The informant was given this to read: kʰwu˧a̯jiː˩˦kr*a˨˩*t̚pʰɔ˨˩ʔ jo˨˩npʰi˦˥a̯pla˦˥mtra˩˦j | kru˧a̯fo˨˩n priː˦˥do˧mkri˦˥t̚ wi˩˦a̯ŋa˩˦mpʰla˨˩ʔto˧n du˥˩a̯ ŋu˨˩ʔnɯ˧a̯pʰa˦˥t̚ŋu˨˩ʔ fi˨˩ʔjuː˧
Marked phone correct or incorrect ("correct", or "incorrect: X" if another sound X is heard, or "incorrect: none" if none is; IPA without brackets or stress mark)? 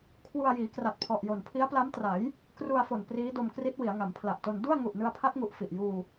correct